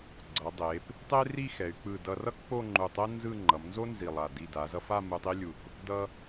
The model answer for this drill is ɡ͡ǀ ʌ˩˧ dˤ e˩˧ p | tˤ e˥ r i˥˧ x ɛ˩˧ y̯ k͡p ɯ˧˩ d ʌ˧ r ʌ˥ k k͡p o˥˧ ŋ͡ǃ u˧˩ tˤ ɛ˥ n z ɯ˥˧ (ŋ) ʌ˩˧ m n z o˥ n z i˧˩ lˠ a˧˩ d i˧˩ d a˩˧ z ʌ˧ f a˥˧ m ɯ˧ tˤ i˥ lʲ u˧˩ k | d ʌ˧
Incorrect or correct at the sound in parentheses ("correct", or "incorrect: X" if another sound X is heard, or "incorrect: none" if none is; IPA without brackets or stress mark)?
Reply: incorrect: ŋ͡ǃ